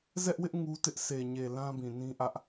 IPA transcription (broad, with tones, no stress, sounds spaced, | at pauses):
z ɛ˦ ʔ w ɪ˦ ʔ ŋ u˦ t ɪ˦ ʔ sʰ e˨ ɲ e˨ l ã˦ b ĩ˨ n ĩ˦ ʔ ä˦ ʔ